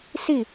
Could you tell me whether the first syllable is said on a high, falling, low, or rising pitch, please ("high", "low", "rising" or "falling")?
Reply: falling